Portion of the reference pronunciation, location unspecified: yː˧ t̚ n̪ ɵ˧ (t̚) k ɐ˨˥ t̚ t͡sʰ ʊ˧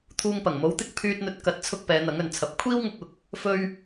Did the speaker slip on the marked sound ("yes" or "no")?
no